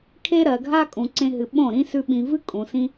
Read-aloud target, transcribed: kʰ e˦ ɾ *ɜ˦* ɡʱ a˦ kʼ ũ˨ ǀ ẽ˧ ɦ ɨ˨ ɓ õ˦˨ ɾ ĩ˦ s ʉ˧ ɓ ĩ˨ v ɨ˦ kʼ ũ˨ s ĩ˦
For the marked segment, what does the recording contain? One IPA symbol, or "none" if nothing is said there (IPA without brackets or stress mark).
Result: ɜ˨